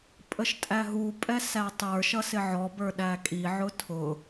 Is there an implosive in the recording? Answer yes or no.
yes